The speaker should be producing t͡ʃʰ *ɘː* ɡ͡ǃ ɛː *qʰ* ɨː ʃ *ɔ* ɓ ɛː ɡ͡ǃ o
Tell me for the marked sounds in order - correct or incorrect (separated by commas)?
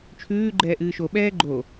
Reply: incorrect, incorrect, incorrect